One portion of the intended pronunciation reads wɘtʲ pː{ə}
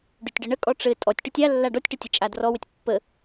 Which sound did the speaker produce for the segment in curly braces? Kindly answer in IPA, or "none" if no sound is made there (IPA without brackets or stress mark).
ə